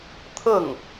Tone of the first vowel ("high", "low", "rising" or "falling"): falling